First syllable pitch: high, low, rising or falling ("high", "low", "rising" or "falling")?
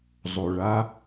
low